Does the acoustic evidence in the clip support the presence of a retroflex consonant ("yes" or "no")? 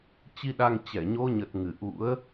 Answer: no